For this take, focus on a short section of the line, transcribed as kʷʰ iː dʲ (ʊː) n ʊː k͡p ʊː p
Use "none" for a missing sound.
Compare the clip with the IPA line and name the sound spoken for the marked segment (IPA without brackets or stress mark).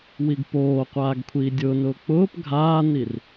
ʊː